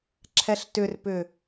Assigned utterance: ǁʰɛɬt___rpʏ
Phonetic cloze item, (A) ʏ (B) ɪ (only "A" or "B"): A